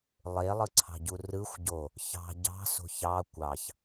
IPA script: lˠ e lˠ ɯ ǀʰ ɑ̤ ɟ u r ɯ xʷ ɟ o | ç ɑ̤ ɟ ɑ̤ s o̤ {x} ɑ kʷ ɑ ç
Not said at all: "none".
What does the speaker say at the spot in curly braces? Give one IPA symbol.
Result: ç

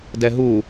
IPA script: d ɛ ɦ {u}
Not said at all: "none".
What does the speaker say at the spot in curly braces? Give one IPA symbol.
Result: u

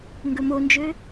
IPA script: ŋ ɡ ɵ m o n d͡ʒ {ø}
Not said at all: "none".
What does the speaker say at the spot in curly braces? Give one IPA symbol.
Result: ø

